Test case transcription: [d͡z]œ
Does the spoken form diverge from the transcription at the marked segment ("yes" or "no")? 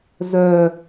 yes